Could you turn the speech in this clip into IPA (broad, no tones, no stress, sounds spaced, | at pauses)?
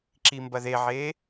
ǁ i m b ɐ ð e ʕ e